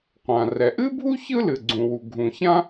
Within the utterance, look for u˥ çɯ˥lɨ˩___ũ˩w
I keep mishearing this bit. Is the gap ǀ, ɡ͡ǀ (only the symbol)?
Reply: ɡ͡ǀ